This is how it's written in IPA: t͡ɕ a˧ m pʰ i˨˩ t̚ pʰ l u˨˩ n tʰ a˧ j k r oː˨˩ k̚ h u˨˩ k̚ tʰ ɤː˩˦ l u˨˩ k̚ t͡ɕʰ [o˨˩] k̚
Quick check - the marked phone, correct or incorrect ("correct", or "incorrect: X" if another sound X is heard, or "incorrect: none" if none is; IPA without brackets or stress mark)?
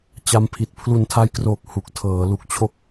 incorrect: o˥˩